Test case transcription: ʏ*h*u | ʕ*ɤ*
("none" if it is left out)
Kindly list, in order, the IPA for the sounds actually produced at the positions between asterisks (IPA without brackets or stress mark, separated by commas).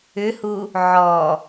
h, ɔ